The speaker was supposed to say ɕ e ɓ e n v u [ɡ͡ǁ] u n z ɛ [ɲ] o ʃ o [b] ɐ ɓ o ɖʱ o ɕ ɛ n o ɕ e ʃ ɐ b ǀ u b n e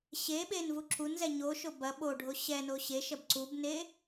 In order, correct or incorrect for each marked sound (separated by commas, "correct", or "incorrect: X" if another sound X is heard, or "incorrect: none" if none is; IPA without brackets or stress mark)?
incorrect: ǁ, correct, correct